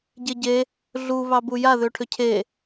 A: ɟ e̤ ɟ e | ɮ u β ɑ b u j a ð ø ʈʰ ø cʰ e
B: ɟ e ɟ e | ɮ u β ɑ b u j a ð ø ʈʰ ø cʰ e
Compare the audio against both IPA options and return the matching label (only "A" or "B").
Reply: B